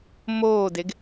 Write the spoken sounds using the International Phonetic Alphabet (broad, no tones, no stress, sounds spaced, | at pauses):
m oː d e ɡ